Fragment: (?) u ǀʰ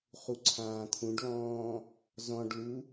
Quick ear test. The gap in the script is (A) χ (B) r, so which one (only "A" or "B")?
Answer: A